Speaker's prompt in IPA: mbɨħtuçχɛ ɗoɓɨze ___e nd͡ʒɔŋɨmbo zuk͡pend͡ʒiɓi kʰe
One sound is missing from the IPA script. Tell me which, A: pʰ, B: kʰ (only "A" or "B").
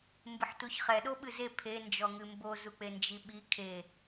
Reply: A